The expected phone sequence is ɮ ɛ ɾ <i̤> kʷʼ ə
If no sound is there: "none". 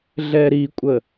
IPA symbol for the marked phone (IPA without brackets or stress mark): i